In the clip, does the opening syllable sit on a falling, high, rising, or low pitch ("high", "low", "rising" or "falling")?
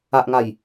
low